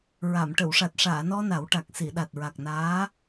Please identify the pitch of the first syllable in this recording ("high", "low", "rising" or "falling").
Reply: low